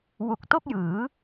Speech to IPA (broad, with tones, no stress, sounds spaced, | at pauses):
w u˨˩ k̚ t o˥˩ k̚ j ɯː˩˦